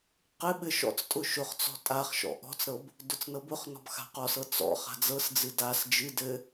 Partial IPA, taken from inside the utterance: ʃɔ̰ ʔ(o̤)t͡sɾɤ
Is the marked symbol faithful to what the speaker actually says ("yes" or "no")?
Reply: no